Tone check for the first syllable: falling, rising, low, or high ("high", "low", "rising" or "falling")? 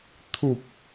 low